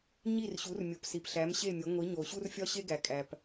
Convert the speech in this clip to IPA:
ɲ i˥˩ r ɕ u˩˥ r mʲ o˩ p s i˩ p ɬ æ˩˥ m ɕ e˥˩ mʲ o˩˥ ŋʷ i˩˥ ɲ o˩ ɕ u˥ r fʲ ɒ˥ ɕ e˥ ɡ æ˩ kʼ æ˩ p

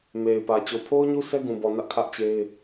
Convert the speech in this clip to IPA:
m e˨ ɪ̯ p ä˨ t͡ɕ o˨ pʰ o˦ ʊ̯ ɲ u˦ s ɛ˦ ɡ ũ˨ b ɔ˨ n ä˦ ʔ kʰ ä˦ ʔ t͡ɕ e˦ ɪ̯

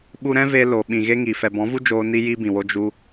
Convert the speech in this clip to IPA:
ɓ u˧ ɾ ɛ̃˦ v e˧ l o˨ ɓ ĩ˨ ɣ e˦ ŋ i˨ f ɛ˨ b ɔ̃˨˦ v u˦ d͡ʒ oː˧ n i˦ j i˦ b ĩ˨ w o˦ d͡ʒ u˦

